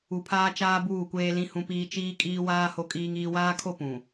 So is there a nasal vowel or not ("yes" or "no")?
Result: yes